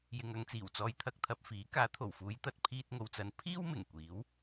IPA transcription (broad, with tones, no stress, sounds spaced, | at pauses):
j ɪ˨ ŋ ɐ˧ ŋ t͡s iː˨˩ w t͡s ɔː˨ j t̪ʰ ɐ˧ k̚ t̪ʰ ɐ˨ p̚ f iː˨˥ k aː˨˥ t̪ʰ o˨˩ w f uː˨˧ j t̪ ɐ˧ t̚ pʰ iː˧ t̚ ŋ o˨ w t͡s ɐ˨˧ n pʰ iː˥ w m ɪ˨˩ ŋ kʷ iː˨˥ w